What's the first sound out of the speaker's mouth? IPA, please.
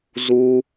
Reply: z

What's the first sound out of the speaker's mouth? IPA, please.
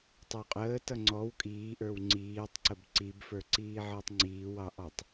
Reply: tˤ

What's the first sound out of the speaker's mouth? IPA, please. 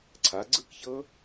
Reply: ǀʰ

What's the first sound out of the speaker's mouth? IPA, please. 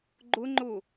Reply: ɡ͡ǃ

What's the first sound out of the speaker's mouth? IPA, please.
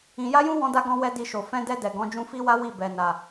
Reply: ĩ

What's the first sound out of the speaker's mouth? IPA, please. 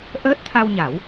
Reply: ʔ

